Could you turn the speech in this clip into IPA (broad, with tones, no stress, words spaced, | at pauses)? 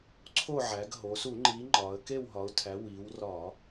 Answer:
ǀʰo˦˨ʕæ˩˧ɡ ɦo˩˧su˧˩˧ ŋ͡ǃi˨˥ŋ͡ǃɒ˩˧ə̯ ke˦˨wɦɒ˩˧ʊ̯tʰæ˩˧ wi˩˧wrɒ˧˩˧